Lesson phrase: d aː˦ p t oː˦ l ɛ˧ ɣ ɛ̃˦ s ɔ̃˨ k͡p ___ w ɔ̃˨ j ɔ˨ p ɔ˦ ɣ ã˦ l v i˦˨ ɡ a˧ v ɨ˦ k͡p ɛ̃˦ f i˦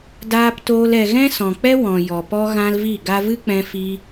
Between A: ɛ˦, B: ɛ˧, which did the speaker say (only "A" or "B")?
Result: A